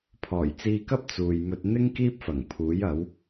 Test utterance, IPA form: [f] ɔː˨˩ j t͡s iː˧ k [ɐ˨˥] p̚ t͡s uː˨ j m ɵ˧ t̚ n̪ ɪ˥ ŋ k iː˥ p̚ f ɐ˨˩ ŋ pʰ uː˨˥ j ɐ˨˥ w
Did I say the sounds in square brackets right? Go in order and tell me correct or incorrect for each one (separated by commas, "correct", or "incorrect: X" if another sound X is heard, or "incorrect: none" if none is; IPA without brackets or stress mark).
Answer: incorrect: pʰ, incorrect: ɐ˥